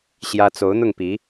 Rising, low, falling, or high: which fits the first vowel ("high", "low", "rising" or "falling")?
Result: high